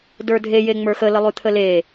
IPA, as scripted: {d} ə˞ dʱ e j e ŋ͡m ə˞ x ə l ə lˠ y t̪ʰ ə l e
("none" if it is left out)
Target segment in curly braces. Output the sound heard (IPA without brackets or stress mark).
d